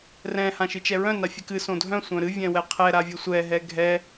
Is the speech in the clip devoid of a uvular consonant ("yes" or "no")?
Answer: no